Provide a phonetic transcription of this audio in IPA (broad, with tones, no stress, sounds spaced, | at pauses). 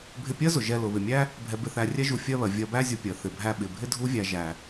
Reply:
bʱ ɪ˧ pʲ ɜ˥ z ʊ˩ ʒ ɛ˧ l ʊ˩ β ɪ˩ mʲ æ˥ | bʱ ɛ˧ b ɪ˧ θ æ˧ rʲ ɛ˥ ʒ u˧ fʲ ɜ˥ β ɜ˩ vʲ ɜ˧ b æ˥ zʲ ʊ˧ pʲ ɜ˩ θ ɪ˩ bʱ æ˧ ɓ ɪ˩ bʱ ɪ˥ dʱ u˥ vʲ æ˧ ʒ æ˩